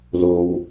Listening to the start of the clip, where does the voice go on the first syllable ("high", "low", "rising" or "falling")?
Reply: low